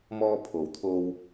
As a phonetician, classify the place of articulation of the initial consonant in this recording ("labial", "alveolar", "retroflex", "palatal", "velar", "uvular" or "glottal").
labial